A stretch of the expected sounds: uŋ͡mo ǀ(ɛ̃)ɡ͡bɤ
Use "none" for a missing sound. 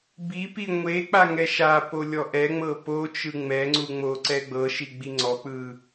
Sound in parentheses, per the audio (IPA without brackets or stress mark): ɛ